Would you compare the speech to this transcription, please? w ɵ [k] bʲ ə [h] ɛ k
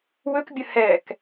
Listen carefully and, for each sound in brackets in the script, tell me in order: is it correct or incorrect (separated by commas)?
correct, correct